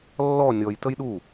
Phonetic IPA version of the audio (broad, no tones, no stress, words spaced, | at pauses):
lːɔ nʲɔj təjɗu